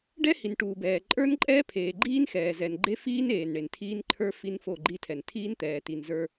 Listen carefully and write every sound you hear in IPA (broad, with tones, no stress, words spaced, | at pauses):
ɖɛ˦hi˨n ʈuː˨bɛː˨ ǃʼə˞˦nǃʼɛː˦ pʰeː˨ɡ͡ǃiː˦nxɛː˨ zɛ˨nɡ͡ǃe˦fiː˦n eː˨nɳe˨ntʰiː˦nǃʰə˞˦ fi˦nfo˦˨ɡ͡ǃi˦tʰɛ˨n tʰiː˦nt̪ɛː˨ ti˨nzə˞˦